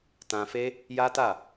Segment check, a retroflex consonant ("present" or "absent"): absent